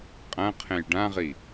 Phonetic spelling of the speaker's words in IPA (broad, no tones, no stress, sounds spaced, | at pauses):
qʼ ɐ̃ qʰ ẽ j ɖ ã ʁ i